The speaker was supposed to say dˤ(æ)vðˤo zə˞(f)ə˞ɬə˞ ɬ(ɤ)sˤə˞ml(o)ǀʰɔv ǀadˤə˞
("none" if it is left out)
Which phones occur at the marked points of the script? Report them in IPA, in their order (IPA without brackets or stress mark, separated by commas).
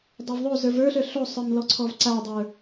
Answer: æ, v, o, ɔ